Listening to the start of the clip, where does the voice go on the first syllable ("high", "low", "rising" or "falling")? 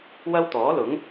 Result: high